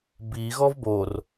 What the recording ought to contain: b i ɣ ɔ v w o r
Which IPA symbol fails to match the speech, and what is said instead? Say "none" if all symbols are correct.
w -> b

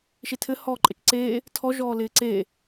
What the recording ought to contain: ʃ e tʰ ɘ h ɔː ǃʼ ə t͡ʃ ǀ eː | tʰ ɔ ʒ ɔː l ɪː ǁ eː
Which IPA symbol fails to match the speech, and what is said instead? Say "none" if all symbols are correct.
ǁ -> ǀ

